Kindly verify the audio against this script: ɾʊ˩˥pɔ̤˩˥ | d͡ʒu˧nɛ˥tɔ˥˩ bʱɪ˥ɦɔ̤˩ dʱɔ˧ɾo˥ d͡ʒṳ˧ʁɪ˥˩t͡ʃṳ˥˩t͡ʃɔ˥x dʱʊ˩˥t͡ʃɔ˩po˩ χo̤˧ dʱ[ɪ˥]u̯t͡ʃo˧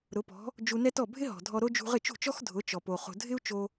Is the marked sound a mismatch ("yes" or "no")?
no